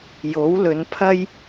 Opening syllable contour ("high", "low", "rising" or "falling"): rising